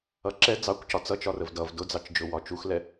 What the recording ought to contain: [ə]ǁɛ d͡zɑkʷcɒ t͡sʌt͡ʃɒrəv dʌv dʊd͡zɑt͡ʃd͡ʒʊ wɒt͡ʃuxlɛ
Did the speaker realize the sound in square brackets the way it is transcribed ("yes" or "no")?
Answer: no